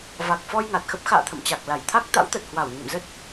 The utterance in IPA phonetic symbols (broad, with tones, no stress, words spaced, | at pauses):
va˨˩k̚fɔ˧j ŋa˨˩t̚xə˦˥p̚ xa̰ː˧˨t̪ʰə̰˧˨m t͡ɕa˨˩k̚la˧˩jt̪ʰa˦˥k̚ t̪a̰˧˥wt̪ə˨˩t̚ hwa˧˩wɲə̰˧˨mzə˦˥t̚